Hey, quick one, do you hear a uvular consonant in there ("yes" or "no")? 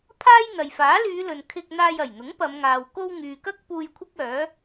no